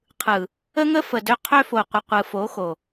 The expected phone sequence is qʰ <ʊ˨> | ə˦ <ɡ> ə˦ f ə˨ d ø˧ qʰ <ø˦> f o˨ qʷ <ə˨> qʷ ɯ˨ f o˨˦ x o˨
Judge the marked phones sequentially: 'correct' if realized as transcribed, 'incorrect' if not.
incorrect: ɯ˨, incorrect: ŋ, correct, correct

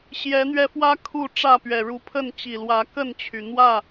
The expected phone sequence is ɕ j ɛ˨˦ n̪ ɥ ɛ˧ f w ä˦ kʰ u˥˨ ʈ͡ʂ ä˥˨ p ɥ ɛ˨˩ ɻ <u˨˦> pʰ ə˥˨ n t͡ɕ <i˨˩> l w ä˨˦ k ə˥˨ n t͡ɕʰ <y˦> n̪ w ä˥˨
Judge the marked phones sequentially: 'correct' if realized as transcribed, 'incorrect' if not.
correct, correct, incorrect: y˩

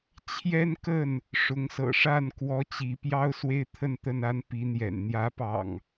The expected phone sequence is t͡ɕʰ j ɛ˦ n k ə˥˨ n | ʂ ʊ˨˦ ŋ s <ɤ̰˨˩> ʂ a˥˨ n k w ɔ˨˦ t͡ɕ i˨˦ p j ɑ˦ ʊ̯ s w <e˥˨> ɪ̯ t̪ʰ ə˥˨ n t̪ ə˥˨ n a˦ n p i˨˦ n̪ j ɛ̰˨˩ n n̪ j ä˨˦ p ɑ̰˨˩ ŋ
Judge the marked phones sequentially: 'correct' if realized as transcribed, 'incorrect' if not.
correct, incorrect: e˦

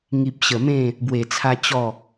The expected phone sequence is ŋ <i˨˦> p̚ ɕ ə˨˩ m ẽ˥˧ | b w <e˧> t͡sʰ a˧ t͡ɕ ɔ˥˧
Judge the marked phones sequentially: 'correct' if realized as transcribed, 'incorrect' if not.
incorrect: i˨, incorrect: e˨˩

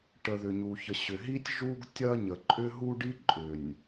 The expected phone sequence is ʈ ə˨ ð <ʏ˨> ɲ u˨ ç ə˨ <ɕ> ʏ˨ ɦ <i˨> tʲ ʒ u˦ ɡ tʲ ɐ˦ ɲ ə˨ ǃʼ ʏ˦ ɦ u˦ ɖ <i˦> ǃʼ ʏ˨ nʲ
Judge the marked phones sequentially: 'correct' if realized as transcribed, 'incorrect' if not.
correct, correct, incorrect: i˦, correct

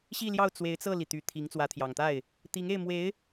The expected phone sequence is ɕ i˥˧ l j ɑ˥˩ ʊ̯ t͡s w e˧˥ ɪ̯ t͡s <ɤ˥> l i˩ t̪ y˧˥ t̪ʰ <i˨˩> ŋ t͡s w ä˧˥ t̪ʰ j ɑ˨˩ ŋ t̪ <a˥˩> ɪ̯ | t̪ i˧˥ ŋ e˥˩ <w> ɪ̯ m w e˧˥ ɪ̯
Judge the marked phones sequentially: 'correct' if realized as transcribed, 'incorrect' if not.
incorrect: ɤ˥˩, incorrect: i˧˥, correct, incorrect: none

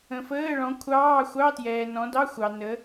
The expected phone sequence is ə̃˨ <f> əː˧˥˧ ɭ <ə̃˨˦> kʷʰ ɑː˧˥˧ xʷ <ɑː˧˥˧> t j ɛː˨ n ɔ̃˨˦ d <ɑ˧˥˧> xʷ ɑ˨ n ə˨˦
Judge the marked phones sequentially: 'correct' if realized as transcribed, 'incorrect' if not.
correct, incorrect: ɔ̃˨˦, incorrect: ɑ˧˥˧, correct

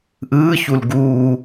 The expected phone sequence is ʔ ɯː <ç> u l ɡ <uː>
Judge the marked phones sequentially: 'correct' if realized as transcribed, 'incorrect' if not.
correct, correct

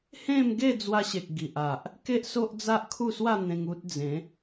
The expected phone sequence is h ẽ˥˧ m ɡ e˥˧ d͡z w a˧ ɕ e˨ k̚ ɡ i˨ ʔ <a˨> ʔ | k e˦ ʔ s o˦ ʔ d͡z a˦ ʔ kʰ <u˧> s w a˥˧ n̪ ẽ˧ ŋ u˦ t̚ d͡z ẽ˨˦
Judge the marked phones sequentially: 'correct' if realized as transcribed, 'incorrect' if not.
correct, incorrect: u˥˧

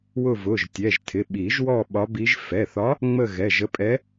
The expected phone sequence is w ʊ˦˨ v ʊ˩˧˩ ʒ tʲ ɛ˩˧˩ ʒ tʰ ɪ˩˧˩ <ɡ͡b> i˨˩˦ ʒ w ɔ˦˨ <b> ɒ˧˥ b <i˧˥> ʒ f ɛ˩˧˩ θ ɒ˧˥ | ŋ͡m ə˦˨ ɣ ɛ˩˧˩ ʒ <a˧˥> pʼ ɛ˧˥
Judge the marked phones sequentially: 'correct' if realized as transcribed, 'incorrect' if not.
incorrect: ɓ, incorrect: ɓ, correct, incorrect: ə˧˥

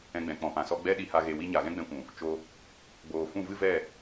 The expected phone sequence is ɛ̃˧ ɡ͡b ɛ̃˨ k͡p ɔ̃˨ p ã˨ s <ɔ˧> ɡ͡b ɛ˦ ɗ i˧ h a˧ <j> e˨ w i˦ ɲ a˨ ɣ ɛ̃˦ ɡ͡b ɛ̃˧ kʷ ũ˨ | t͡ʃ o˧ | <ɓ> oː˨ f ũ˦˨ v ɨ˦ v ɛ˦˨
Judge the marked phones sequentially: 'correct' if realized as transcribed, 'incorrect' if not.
correct, incorrect: ɣ, incorrect: ɡ͡b

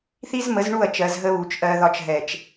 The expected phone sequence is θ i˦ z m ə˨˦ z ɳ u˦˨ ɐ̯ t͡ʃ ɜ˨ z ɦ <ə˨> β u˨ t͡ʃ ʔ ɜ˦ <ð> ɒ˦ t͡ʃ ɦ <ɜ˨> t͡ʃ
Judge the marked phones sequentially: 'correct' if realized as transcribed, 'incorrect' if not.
incorrect: ə˦, correct, incorrect: ɛ˨

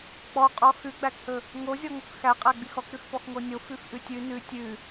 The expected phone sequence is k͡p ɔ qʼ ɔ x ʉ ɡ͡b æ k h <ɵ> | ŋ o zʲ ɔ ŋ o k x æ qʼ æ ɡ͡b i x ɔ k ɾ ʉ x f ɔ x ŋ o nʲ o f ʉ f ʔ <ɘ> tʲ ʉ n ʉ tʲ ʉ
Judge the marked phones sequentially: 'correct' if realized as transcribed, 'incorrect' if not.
correct, incorrect: ʉ

